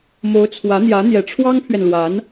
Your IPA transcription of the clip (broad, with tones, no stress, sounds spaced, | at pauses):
m o˧˥ ʊ̯ t͡sʰ w ä˧˥ n̪ j ä˧˥ n̪ j ɛ˨˩ ʈ͡ʂʰ w ɑ˥ ŋ pʰ ɥ ɛ˨ n l w a˧˥ n